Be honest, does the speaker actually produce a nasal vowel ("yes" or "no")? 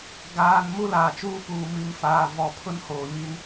no